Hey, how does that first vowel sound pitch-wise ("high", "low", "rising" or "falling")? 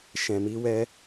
low